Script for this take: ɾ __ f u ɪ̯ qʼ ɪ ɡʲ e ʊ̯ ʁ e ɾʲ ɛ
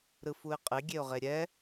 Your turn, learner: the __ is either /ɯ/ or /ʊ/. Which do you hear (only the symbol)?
ɯ